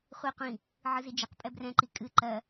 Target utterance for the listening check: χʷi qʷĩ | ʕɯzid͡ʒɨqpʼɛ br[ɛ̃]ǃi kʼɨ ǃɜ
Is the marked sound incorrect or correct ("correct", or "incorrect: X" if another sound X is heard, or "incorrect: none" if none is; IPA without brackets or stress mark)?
correct